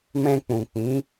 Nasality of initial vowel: nasal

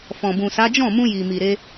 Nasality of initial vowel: nasal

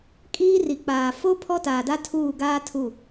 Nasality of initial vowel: oral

